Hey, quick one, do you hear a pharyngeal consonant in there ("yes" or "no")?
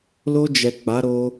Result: no